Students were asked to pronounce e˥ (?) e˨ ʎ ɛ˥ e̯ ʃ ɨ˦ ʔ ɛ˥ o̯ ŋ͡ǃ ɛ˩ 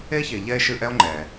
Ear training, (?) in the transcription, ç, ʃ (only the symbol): ç